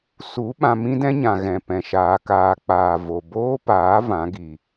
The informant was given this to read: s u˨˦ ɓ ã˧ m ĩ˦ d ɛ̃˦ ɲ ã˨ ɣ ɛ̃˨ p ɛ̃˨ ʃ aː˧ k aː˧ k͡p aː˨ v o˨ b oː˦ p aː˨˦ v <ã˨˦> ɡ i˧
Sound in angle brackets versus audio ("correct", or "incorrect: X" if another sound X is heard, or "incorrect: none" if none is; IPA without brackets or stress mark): correct